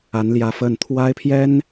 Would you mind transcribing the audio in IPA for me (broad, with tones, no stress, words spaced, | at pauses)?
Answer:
a˧˥nljä˧˥ fə˥˩n t̪ʰwa˥ɪ̯pʰjɛ˥n